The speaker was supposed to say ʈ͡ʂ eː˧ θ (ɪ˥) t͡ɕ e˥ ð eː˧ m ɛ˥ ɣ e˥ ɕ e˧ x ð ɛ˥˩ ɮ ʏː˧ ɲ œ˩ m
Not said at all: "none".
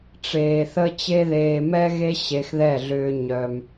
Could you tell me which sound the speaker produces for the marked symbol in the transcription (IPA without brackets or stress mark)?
ə˥